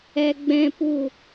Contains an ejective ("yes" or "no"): no